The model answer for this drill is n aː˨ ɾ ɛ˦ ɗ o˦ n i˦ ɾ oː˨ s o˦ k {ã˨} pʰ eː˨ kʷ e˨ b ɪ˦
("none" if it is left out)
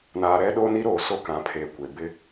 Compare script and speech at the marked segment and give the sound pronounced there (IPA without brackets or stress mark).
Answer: ã˨